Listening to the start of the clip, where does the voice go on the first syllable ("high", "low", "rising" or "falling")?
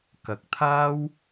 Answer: rising